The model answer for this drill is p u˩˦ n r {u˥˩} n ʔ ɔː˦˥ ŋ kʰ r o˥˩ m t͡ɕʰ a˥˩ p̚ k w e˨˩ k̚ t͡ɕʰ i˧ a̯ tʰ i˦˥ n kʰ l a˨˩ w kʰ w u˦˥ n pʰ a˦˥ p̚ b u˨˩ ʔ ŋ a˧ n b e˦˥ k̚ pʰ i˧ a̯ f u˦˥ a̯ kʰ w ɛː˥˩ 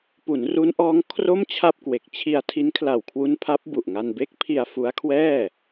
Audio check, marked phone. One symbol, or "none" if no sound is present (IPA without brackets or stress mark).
u˦˥